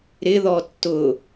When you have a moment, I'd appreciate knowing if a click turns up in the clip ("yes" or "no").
no